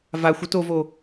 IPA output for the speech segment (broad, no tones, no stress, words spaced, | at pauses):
vaxʷ ɵtovo